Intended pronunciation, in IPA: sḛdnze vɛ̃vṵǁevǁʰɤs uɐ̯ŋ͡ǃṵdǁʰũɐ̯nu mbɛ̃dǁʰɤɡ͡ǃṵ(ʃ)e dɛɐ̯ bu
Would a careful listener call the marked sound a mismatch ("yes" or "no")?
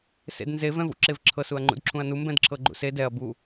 yes